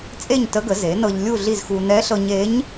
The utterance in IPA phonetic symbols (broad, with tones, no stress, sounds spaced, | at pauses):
t͡sʼ e˥˨ ɲ t ə˧˥ ɡ ə˩˥ z e˩˥ n ɤ˧ ʎ lʲ u˥˨ ɮ i˥˨ z x u˧ n ɛ˧˥ ɬ ɤ˧ ɲ e˧˥ ɲ